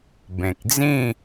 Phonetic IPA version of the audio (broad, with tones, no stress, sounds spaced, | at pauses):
b ẽ˨ k̚ d͡z ĩ˥˧